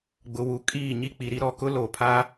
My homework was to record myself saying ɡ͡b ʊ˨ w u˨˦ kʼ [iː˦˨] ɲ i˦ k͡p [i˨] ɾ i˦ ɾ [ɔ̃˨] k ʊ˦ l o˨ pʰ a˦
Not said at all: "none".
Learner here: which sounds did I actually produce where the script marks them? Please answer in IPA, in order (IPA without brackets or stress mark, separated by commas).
iː˦˨, i˨, ɔ˨